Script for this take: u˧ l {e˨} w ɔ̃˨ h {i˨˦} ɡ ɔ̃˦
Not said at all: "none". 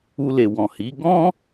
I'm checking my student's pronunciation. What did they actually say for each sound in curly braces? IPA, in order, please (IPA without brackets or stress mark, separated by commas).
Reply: e˨, i˨˦